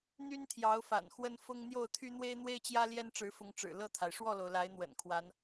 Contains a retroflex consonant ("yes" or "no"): yes